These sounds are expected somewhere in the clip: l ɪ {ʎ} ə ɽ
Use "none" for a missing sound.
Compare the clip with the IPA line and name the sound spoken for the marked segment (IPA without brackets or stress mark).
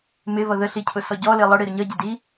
lˠ